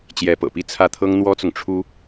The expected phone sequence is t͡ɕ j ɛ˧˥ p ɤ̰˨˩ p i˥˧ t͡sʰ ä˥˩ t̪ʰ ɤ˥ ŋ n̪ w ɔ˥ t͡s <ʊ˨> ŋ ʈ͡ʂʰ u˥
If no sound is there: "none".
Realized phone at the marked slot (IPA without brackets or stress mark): ʊ˨